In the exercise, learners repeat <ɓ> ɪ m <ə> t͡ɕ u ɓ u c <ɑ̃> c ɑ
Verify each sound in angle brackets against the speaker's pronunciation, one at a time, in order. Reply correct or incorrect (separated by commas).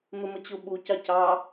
incorrect, correct, incorrect